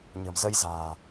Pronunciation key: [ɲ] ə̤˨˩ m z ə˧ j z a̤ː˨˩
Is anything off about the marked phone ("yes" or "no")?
no